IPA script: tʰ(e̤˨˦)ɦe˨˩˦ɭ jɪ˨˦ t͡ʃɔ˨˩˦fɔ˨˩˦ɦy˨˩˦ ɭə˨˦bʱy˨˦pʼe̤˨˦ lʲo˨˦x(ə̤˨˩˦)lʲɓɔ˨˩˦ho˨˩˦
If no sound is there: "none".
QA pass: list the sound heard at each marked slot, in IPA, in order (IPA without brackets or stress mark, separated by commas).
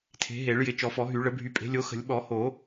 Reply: e̤˨˦, ə̤˨˩˦